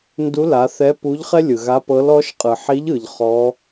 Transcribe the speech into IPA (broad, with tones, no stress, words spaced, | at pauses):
ndu˧˥la˩˧ θɛ˧˥pu˧˥ʎχɛ˥ lʲɯ˩ɣa˧˥pɤ˧˥l ɔ˧˥ʃ qʼɯ˩ħi˧˥ʎɯ˩ʎ χɔ˧˥